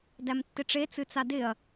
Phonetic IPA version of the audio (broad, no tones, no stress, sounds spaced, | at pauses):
d æ m tː ɪ ʈ͡ʂ e t͡s ɨ t͡s a d ɪ ɐ̯